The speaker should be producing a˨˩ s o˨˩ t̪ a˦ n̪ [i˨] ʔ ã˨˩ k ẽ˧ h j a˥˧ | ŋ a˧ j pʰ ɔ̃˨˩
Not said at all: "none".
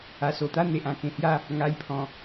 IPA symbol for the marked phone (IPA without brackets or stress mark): e˨